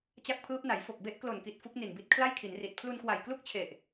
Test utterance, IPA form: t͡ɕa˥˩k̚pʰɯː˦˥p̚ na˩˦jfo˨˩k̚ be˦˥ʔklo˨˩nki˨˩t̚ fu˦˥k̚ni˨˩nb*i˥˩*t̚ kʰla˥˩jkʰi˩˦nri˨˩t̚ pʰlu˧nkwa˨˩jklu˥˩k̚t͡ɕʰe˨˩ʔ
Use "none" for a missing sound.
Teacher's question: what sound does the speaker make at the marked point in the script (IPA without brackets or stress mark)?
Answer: i˦˥